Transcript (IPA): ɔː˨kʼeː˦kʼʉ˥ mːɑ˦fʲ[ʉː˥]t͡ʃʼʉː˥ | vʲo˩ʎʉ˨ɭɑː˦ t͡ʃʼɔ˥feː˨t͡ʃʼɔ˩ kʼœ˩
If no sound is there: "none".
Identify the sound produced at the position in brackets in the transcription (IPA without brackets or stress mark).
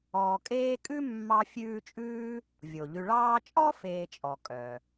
ʉː˦